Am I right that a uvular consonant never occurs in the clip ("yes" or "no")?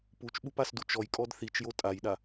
yes